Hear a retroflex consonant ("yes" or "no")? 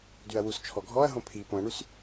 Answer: yes